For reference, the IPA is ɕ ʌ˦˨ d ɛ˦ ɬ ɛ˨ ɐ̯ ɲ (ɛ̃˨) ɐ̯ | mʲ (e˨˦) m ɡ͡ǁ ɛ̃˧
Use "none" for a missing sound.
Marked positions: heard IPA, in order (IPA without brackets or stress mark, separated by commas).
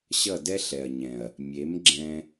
ɛ̃˨, e˨˦